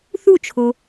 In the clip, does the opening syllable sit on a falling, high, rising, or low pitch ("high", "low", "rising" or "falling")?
falling